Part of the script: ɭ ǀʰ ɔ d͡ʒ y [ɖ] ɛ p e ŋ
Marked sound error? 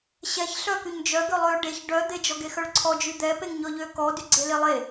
yes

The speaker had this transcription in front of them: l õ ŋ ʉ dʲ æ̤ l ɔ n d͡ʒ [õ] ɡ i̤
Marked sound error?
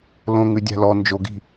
yes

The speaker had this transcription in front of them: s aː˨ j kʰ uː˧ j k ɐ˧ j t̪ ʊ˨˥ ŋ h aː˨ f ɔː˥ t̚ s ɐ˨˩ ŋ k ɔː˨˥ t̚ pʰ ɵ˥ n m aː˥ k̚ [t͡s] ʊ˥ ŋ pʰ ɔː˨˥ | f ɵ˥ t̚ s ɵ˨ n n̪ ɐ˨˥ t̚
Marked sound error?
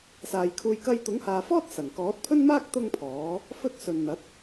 yes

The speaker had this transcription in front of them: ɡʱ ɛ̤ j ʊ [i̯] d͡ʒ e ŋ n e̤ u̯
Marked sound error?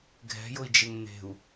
no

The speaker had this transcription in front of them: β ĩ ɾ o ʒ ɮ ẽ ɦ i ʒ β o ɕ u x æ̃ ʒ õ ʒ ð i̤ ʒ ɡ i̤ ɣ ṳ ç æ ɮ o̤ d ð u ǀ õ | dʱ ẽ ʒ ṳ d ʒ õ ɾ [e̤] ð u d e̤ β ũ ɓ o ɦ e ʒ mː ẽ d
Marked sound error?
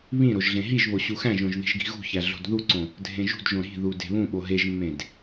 yes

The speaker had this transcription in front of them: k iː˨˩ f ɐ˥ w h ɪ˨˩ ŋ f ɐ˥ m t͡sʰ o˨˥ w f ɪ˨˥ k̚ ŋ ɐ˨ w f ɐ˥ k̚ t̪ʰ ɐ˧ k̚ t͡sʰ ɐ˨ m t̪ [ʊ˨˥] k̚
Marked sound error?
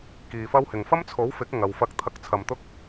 yes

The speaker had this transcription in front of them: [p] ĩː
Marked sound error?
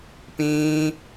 no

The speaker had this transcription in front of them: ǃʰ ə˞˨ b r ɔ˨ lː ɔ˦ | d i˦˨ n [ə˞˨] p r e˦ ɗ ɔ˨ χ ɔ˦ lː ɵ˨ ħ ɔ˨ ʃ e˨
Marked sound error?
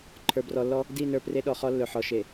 yes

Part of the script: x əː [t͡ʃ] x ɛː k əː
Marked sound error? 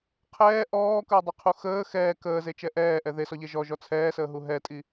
yes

